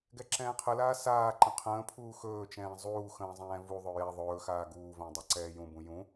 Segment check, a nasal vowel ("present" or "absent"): present